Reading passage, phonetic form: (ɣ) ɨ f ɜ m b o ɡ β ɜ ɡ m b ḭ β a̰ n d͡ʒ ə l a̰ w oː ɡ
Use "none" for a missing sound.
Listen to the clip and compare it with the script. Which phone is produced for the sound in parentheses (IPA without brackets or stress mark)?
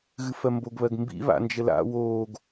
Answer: ɣ